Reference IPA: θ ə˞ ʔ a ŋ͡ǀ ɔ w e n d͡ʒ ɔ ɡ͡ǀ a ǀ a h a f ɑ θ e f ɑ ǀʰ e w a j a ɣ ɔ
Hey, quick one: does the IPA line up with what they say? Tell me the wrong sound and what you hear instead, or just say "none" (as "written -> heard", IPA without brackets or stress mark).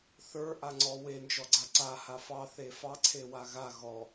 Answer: j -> ɣ